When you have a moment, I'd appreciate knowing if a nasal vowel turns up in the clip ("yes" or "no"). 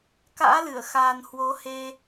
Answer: no